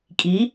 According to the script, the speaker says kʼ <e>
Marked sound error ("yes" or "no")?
yes